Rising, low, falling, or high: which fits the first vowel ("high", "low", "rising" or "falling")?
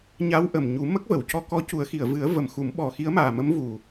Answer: rising